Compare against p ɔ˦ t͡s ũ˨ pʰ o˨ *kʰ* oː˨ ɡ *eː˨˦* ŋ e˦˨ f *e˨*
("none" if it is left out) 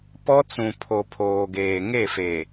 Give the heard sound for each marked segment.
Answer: pʰ, eː˨, e˨

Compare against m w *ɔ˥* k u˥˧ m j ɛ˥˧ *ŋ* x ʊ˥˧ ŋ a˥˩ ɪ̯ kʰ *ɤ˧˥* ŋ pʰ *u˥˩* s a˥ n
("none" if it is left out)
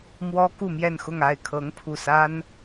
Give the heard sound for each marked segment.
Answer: ɔ˥, n, ɤ˧˥, u˥˩

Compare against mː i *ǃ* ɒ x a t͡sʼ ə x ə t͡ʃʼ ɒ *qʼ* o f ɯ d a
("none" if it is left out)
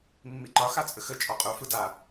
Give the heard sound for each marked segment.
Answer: ǃ, qʼ

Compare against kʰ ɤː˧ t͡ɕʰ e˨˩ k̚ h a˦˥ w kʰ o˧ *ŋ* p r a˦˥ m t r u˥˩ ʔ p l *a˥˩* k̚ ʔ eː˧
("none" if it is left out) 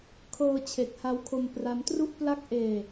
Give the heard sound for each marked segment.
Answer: m, a˥˩

